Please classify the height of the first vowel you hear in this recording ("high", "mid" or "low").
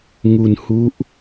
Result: high